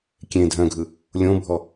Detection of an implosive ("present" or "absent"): absent